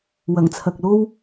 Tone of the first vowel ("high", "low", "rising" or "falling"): low